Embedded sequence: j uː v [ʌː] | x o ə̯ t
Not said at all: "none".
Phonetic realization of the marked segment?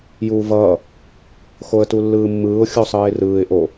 ʌː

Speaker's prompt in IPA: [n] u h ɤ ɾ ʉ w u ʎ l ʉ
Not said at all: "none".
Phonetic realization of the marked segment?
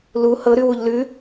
l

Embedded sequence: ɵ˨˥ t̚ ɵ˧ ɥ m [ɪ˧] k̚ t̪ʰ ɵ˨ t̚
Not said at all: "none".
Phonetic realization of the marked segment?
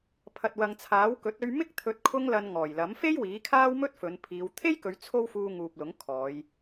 ɪ˥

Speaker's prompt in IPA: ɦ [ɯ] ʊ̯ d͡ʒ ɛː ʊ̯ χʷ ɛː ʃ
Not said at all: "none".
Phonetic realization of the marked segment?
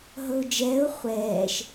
ɤ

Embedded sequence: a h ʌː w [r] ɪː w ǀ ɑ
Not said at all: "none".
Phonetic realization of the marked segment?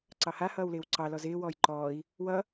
l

